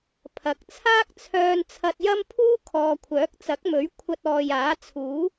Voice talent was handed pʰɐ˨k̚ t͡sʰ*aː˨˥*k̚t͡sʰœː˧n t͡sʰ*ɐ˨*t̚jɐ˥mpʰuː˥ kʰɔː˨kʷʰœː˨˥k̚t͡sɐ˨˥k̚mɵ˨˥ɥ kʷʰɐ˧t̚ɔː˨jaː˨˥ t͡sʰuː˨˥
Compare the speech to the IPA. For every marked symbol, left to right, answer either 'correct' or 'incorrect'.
incorrect: aː˥, incorrect: ɐ˧

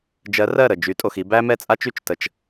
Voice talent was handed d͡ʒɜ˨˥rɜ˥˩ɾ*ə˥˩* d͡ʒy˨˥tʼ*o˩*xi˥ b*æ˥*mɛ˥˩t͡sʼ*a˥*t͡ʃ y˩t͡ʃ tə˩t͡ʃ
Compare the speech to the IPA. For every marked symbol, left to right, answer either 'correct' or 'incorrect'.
correct, correct, correct, correct

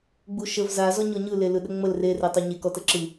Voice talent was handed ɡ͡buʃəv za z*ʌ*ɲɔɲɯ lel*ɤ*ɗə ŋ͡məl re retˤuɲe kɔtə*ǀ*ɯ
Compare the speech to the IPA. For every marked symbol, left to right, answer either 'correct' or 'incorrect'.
incorrect: ɔ, incorrect: ɯ, incorrect: ǁ

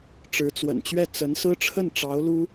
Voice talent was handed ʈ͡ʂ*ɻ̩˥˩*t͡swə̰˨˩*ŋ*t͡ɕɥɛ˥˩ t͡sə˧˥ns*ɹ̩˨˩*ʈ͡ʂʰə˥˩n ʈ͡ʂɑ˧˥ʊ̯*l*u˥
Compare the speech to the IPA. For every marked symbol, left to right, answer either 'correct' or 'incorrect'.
incorrect: ɻ̩˧˥, incorrect: n, incorrect: ɹ̩˥, correct

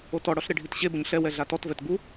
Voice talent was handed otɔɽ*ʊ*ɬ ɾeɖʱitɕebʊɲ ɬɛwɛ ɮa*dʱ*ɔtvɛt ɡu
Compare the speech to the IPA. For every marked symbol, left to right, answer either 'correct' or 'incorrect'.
incorrect: ɔ, incorrect: t

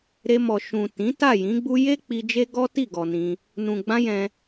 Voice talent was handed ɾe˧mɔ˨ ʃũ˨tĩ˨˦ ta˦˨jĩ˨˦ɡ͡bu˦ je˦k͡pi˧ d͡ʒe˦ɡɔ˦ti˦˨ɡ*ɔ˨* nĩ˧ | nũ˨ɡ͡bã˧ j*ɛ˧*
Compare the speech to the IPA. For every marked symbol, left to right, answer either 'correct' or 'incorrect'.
correct, incorrect: ɛ̃˧

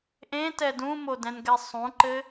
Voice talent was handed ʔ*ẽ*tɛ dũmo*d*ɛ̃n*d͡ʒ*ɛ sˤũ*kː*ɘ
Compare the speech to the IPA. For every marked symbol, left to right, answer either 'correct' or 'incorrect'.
correct, correct, incorrect: ɡ, incorrect: ǃ

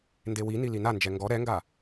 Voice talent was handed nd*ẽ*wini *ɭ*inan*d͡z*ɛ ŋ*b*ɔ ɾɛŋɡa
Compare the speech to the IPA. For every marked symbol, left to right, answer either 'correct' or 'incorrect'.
incorrect: e, incorrect: l, incorrect: d͡ʒ, incorrect: ɡ

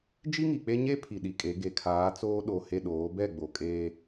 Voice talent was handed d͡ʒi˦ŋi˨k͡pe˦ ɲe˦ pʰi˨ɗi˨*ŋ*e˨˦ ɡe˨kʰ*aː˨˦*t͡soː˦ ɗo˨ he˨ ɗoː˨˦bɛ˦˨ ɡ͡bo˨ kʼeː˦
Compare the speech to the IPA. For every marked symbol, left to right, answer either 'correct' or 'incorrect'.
incorrect: kʼ, correct

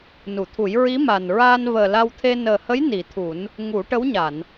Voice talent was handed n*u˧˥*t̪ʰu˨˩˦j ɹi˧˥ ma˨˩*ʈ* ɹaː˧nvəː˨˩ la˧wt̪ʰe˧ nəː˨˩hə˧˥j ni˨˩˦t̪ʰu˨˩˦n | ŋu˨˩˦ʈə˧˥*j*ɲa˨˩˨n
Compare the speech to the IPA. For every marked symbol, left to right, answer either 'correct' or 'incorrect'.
incorrect: u˨˩˨, incorrect: n, incorrect: w

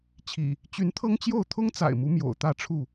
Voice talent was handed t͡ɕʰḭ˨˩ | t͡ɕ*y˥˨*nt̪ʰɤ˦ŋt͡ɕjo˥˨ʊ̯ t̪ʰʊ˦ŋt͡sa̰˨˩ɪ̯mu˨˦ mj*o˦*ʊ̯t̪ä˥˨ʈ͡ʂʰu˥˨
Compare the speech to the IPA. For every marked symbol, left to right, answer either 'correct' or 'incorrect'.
incorrect: y˨˦, incorrect: o̰˨˩

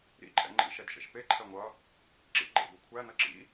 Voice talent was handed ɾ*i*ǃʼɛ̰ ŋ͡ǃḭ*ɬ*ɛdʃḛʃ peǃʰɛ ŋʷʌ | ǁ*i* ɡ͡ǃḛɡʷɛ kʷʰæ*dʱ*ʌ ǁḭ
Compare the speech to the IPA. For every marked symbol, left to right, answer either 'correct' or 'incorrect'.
incorrect: ḭ, incorrect: ʃ, incorrect: ḭ, incorrect: n

